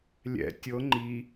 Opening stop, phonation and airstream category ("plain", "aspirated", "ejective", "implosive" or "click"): plain